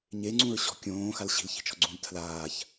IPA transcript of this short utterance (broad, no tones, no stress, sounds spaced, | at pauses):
ɲ e ŋ͡ǀ ũ ɹ ɕ ɔ̤ kʲ õː x a l ɕ i̤ l ç i̤ t͡ʃ ɔ̤ ɡ͡ǀ ũ l tʰ l aː ç